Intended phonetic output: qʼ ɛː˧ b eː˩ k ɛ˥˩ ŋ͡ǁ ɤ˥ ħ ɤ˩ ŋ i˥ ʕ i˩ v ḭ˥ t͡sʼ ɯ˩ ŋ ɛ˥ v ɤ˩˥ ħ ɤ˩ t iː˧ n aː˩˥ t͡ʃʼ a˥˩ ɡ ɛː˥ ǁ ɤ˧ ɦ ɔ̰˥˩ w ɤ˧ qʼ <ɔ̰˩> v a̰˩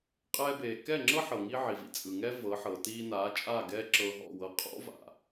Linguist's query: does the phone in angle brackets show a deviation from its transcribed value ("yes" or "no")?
yes